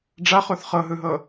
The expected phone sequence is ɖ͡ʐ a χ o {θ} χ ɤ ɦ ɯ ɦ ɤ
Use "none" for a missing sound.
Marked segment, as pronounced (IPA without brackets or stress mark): θ